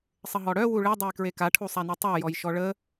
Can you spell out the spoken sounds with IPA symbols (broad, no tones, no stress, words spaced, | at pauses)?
sˤəɦɔɽœ wuɭe dˤejkɹeka ʈʰusˤanutˤə˞ jɔjʃɔɭə